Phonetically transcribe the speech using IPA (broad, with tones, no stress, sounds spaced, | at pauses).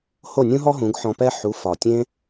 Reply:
h o˥˩ nʲ ũ˥ ɦ ɔ˥ ɦ ũ˩˥ ɡ ħ ɔ̃˧ p ɛ˥ ħ u˩˥ f ɒ˩ tʲ ẽ˧